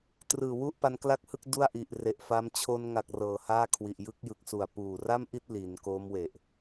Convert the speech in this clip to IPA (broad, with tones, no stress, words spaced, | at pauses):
trɯː˨˩wu˥˩ʔ pa˦˥nkla˥˩k̚hɯ˥˩k̚ du˥˩a̯ʔi˨˩ʔre˨˩ʔfa˦˥m t͡ɕʰo˧nŋa˨˩k̚ rɤː˨˩haː˥˩kʰwi˨˩ʔ jɯ˦˥k̚jɯ˨˩k̚su˨˩a̯ puː˨˩ ra˥˩mʔi˥˩t̚ li˩˦n koː˦˥mwe˨˩ʔ